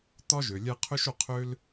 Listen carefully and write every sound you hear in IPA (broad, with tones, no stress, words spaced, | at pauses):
t̪ɒ˦ʒø˨ lʲɛ˧qʰø˦ʃ o˧qʰø˦l